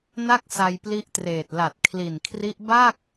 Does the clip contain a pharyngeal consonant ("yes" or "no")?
no